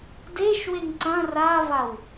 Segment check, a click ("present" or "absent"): present